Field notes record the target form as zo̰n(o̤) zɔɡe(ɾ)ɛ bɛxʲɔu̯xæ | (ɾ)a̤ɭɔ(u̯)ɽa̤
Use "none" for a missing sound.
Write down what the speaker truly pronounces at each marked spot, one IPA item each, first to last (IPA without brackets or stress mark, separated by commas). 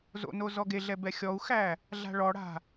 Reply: o, ɮ, ɮ, none